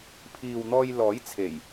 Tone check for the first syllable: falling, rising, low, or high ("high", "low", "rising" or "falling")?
low